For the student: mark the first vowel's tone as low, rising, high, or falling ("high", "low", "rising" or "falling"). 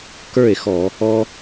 falling